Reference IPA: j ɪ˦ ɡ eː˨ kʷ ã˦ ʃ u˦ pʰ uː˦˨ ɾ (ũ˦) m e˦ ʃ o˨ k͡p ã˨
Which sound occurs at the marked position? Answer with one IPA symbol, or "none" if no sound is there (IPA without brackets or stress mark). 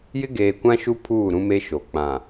ũ˦